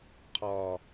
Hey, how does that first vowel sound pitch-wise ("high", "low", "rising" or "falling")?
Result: low